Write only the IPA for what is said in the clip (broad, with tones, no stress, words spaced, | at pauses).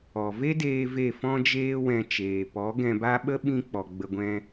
ɔ˨ve˦deː˧ ve˦˨fɔ̃˦d͡ʒeː˦wɛ̃˧ t͡ʃeː˨pɔ˨˦ ɡɛ̃˧ba˦ ɓə˦ɓĩ˧k͡pɔ˨ ɡ͡bə˧ɡʷɛ̃˦